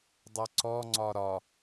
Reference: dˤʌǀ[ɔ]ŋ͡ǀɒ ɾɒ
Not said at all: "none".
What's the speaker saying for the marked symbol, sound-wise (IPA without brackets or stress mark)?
ɔ